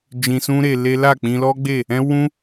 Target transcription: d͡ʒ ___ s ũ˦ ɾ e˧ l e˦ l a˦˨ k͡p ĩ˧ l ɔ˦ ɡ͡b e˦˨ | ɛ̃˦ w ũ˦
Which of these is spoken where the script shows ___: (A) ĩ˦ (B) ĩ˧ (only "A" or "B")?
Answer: B